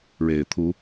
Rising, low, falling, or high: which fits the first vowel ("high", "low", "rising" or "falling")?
low